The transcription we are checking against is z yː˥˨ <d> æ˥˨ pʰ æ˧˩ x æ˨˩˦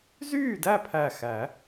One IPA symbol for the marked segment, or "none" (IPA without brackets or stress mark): d